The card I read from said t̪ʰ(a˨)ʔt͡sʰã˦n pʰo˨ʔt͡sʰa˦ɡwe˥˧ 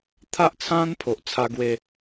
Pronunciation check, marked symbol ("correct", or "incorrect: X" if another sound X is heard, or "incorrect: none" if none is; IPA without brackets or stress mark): incorrect: a˦